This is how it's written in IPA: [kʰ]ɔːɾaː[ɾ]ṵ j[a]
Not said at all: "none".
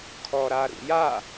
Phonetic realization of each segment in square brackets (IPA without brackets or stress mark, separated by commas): kʰ, ɾ, a